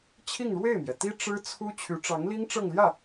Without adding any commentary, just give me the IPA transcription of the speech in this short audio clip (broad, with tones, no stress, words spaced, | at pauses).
t͡ɕʰi˥˧ŋɻwe˥˩ɪ̯mjɛ˩t̪i˥ ʈ͡ʂɻ̩˥t͡sʰu˥ t͡ɕʰy˧˥ ʈ͡ʂɑ˧˥ŋli˥ŋ ʈ͡ʂɤ˥˧ŋljä˥˩